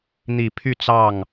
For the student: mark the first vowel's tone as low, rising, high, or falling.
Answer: low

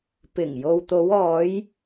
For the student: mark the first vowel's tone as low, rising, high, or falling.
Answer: low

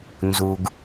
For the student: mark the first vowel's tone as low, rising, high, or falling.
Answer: low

